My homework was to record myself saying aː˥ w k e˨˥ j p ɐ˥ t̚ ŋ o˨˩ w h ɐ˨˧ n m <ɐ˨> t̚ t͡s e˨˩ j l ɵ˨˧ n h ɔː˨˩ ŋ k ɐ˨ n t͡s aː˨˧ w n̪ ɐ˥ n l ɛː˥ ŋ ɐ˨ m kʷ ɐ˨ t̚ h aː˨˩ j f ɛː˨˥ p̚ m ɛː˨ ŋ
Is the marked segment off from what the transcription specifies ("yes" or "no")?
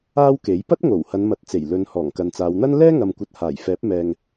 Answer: no